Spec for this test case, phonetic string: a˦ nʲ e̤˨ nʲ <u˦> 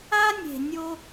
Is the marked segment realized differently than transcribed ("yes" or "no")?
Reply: yes